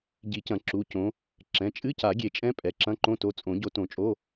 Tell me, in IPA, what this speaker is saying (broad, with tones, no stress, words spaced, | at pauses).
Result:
ɟi˨˩˦cɐ̃˨˩˦ǁu˩˧˩ cõ˨˦ | ǁɛ̃˩˧˩t͡ʃʼɨ˧˥˧ca˨˩˦ ɡʲe˨˩˦t͡ʃʼɛ̃˧˥˧ pʼɛ˩˧˩ǁɐ̃˧˥˧ǃõ˧˥˧ to˨˦t͡sʼõ˨˩˦ ɟo˨˦tõ˨˩˦t͡ʃʼo˧˥˧